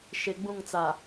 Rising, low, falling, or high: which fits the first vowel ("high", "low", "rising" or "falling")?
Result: low